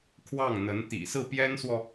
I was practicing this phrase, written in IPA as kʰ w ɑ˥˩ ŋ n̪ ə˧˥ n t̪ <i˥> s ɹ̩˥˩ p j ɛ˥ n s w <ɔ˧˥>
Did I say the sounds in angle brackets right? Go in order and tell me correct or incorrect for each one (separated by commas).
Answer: incorrect, incorrect